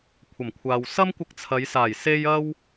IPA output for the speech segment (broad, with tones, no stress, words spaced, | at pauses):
kʷʰɐ˨˩mkʷʰaː˨wsɐ˥m kʷɪ˧k̚t͡sʰɐ˨˧jsaː˨˩j se˧jɐ˧w